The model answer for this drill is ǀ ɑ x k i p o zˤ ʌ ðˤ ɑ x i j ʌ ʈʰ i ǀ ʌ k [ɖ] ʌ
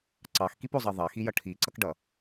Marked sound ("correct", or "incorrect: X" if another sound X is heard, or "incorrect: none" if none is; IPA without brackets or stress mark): correct